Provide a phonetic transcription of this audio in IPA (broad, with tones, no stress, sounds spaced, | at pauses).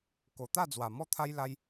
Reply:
k o˨˩ t̪ a˥˧ d͡z w a˨˩ m ɔ˦ t̪ʰ a˦ j l a˦ j